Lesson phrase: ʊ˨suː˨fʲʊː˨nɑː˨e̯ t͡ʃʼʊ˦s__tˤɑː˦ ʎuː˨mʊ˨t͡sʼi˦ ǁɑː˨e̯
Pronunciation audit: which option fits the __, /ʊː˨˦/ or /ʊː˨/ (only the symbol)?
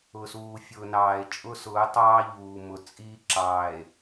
ʊː˨˦